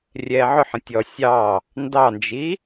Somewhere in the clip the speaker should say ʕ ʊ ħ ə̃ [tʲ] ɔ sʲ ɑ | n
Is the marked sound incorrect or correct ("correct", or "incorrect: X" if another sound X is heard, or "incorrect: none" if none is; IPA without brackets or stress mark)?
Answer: correct